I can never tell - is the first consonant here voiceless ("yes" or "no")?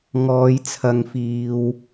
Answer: no